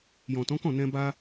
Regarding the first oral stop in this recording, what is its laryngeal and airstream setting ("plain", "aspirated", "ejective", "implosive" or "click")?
plain